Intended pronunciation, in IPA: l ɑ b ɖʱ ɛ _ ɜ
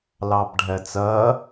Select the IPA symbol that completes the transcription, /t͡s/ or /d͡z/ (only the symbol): t͡s